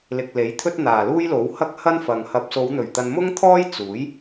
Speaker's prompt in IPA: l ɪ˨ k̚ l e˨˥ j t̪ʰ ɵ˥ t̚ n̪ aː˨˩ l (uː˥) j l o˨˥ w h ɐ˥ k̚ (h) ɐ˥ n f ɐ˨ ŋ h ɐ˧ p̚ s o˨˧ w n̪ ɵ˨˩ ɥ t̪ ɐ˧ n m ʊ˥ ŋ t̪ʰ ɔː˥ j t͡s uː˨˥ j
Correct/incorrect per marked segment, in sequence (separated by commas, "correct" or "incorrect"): correct, correct